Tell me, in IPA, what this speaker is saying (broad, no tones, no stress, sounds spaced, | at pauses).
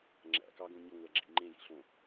ŋ͡ǁ æ̰ k ɑ ɡ õ ɲ ɵ ŋʷ æ ɡ͡ǁ ḭ ŋ͡ǃ ẽ j ḭ ɬ õ